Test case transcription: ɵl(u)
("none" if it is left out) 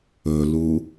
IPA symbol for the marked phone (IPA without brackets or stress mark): u